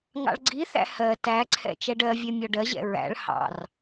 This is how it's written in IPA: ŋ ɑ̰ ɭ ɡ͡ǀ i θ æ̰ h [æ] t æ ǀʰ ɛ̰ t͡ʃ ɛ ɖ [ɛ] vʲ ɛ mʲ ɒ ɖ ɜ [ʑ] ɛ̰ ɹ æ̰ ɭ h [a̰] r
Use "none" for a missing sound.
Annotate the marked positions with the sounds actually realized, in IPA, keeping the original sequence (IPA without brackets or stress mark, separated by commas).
ɜ, ɜ, ʑ, ɑ̰